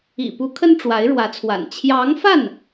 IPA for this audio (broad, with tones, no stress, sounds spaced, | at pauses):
ḭ˨˩ p u˧˥ kʰ ə˥ n ʈ͡ʂ w a˧˥ ɪ̯ ɻ w ä˧˥ t͡sʰ w a̰˨˩ n t͡ɕʰ j ɑ˧˥ ŋ f a˥˩ n